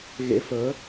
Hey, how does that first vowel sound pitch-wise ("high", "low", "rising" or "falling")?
rising